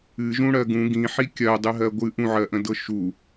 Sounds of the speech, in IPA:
ɨ ʒ ũ ɽ ɜ ɡ ũ ɡ ĩ ħ i kʲ ɜ dˤ ɨ ɦ ɜ ɡʷ ɨ ʔ ũ ʕ ɜ ʔ ə̃ d ɤ ʃ u

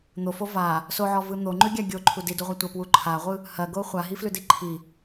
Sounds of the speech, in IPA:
n̪ o f o v a | s o ʕ ɔ v ɯ n̪ o ŋ͡ǃ ʉ ɡʲ a ɡʲ o ǃʰ u d i d u ʁʷ a tʷ ɐ p w u ǃʰ a ʁʷ ɯ | h ɐ ɡ o χʷ a ɦ i f l ʉ d i ǃʰ i

